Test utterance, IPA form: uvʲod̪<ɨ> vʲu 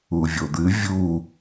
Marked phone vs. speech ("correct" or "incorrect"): correct